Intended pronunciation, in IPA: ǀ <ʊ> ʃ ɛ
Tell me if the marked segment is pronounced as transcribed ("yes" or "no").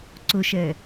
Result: yes